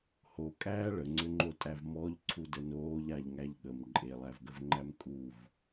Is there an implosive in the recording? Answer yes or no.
yes